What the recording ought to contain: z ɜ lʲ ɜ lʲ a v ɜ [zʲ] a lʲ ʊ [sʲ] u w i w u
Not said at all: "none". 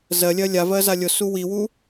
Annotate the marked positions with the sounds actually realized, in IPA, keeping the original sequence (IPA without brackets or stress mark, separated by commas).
z, s